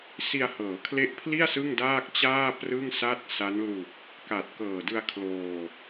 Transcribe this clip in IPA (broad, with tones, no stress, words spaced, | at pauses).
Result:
si˧a̯hɤː˩˦kʰle˦˥ʔpʰli˥˩a̯ sɯ˥˩ŋdaː˥˩k̚t͡ɕaː˥˩ prɯ˥˩ŋsa˥˩t̚sa˦˥n lu˨˩k̚ | ka˨˩t̚ kɤː˨˩dɯ˧a̯ kʰloː˧